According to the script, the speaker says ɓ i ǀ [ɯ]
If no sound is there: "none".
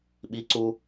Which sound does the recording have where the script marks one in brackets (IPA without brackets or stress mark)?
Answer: u